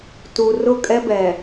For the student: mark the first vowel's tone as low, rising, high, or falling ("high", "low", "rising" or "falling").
low